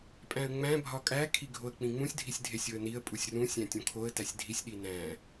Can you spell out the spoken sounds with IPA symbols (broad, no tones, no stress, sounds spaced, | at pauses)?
pʼ æ̃ ə̯ ŋ͡m æ̃ bʱ ɒ kʼ æ kʰ i ɡʱ o ə̯ k͡p ĩ ŋ͡m ũ sʲ dʱ i sʲ dʱ e sʲ o ə̯ n i ə̯ pʼ u sʲ r ũ sʲ æ̃ tʲ õ kʰ o ə̯ t æ sʲ dʱ i sʲ ɗ i n æ̃